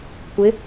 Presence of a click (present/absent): absent